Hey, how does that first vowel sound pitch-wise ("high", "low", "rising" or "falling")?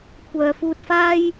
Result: low